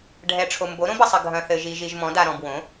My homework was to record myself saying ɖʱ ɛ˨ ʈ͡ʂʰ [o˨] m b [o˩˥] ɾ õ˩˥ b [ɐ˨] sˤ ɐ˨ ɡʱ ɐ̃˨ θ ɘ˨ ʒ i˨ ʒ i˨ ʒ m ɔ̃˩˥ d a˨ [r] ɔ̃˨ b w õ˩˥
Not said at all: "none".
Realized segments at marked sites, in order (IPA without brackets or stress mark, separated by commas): o˨, o˩˥, ɐ˨, ɾ